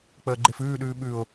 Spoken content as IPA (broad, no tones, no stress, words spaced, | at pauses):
k͡pəːɡ͡ǃefʉːɗʉː ɓʉʊ̯